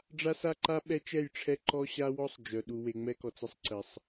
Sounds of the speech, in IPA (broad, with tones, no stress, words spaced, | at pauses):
ɖ͡ʐa˦sa˦ǃa˦ ɓɛ˦t͡ʃɛ˦˨jʈ͡ʂʰɛ˦ ǃɔ˦ɕa˦wɔ˦sˤ d͡ʒœ˨ ɗu˨we˨ ŋ͡mɛ˦kɔ˨t͡sə˦sˤǀə˨sˤ